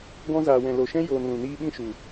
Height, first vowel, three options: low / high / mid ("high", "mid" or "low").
mid